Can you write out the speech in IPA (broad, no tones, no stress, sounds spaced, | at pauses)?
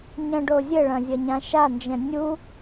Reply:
ɲ ɐ̃ ɖ o zʲ ɘ ɭ ɐ̃ zʲ ɐ ɲ ã ʃ a n d͡ʒ ɛ̃ nʲ u